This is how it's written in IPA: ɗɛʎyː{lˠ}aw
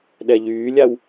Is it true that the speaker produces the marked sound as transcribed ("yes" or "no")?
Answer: no